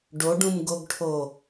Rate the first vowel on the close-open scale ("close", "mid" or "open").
mid